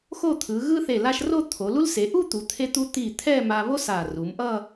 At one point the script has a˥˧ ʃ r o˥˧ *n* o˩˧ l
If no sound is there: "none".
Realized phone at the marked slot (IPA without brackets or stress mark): t̪ʰ